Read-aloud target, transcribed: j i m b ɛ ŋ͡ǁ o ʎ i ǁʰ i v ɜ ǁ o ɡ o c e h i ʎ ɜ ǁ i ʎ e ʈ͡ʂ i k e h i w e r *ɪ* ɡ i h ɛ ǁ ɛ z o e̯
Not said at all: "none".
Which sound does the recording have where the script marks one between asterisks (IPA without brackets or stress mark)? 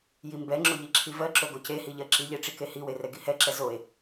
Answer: ɛ